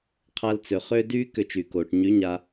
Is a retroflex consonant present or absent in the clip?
present